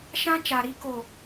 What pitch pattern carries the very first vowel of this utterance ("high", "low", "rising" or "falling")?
high